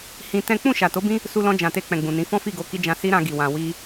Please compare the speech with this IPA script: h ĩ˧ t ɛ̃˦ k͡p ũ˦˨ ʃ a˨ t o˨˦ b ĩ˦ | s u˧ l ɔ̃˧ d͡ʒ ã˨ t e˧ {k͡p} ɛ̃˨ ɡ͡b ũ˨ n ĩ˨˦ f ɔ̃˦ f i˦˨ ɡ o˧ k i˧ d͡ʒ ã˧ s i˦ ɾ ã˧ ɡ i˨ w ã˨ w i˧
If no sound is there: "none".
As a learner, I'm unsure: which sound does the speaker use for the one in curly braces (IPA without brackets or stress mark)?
k͡p